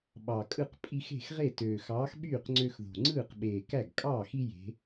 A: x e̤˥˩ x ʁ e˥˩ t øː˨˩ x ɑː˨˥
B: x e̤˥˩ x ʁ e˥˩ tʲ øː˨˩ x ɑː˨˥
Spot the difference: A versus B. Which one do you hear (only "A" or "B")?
A